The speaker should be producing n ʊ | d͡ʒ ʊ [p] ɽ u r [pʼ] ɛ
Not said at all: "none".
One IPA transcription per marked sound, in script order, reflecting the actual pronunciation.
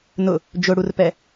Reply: none, p

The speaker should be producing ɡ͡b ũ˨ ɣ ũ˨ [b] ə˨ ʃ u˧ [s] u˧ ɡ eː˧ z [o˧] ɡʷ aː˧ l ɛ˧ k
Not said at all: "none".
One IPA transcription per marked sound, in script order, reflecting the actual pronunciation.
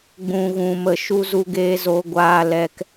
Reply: m, z, o˧

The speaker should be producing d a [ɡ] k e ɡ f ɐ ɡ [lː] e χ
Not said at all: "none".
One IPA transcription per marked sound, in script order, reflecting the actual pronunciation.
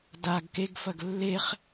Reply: ɡ, lː

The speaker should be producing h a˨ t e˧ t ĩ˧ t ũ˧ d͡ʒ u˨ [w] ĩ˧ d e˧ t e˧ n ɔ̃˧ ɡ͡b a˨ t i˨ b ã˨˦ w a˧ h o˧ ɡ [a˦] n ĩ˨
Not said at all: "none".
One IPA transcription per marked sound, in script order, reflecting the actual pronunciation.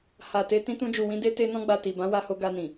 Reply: w, a˧

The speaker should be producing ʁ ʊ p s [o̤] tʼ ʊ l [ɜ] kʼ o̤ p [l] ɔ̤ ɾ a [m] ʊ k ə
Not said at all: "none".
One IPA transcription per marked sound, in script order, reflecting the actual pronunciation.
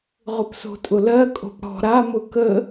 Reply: o̤, ɜ, ɽ, m

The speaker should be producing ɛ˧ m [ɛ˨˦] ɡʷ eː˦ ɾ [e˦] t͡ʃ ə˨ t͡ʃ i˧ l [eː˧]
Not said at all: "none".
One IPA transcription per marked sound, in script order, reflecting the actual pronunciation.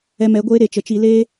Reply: ɛ˨˦, e˨, eː˦

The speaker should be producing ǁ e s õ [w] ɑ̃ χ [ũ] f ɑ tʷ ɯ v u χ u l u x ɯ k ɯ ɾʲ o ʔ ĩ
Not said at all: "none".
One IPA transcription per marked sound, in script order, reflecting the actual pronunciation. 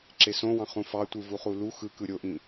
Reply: w, ũ

